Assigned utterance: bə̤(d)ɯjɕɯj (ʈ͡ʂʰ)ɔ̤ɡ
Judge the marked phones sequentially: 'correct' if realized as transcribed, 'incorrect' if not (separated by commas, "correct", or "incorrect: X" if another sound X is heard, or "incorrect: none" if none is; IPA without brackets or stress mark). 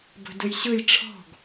correct, correct